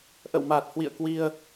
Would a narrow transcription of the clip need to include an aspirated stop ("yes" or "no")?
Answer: no